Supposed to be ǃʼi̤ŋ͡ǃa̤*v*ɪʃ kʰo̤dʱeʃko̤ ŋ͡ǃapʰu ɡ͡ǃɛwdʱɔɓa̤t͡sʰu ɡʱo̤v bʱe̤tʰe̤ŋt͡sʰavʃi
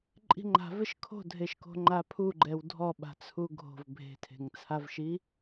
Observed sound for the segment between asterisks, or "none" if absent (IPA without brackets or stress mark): v